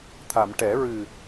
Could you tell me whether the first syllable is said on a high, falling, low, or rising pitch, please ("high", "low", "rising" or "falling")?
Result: low